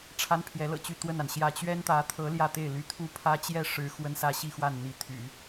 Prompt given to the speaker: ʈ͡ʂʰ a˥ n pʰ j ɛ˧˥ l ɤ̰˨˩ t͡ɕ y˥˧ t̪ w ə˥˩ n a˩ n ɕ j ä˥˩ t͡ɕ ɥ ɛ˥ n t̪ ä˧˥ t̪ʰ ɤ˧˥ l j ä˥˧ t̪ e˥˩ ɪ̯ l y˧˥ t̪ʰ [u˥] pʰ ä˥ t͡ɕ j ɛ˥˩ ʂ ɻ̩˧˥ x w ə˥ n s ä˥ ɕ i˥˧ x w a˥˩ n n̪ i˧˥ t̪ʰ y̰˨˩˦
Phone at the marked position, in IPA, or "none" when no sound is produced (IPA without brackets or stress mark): u˥